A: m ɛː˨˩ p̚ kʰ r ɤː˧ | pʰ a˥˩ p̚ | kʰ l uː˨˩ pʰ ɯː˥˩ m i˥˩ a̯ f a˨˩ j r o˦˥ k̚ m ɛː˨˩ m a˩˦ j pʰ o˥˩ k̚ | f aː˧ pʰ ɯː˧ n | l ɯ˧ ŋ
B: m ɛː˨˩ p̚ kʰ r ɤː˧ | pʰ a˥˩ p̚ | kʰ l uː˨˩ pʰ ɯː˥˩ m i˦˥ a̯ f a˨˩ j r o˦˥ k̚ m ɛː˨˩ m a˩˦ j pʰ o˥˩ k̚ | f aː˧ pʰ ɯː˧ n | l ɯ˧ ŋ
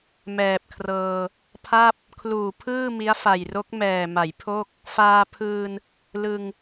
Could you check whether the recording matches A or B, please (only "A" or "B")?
B